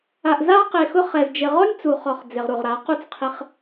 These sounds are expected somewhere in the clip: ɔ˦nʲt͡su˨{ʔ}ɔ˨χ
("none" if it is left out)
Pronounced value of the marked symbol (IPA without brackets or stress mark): χ